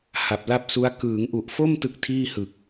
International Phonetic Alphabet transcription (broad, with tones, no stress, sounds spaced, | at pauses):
h a˨˩ p̚ l a˥˩ p̚ s u˦˥ a̯ k ɯː˩˦ ŋ ʔ u˨˩ ʔ f o˥˩ m t ɯ˦˥ k̚ tʰ iː˥˩ h ɯ˨˩ k̚